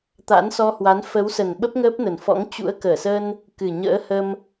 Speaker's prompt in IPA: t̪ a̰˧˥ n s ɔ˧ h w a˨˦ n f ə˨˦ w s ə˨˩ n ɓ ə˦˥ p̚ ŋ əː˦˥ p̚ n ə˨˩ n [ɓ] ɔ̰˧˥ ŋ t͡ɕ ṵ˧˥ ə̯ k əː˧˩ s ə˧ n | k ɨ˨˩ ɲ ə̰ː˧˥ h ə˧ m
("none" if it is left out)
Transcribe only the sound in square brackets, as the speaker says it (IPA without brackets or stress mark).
f